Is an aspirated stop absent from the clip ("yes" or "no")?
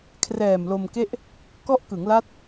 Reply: no